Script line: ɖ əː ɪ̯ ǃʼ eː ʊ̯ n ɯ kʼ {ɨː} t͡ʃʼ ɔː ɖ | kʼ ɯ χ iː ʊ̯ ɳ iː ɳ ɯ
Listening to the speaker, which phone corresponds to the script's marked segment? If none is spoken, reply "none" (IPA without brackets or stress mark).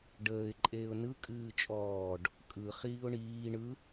ɨː